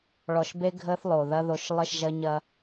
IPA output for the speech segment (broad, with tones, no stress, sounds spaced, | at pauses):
ɭ ɔ˨ ʃ b e˦ ɡʱ ə˦ θ lˠ o˨ ð ɐ˦ ð o˨ ʃ lˠ ə˦˨ ʃ ʒ ɐ˦ ɲ ɐ˦